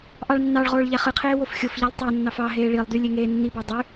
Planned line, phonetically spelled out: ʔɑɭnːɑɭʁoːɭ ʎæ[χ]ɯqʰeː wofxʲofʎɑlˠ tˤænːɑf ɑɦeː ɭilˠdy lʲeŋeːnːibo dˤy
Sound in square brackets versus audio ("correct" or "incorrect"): correct